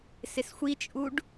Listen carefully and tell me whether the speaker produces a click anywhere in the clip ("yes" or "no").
no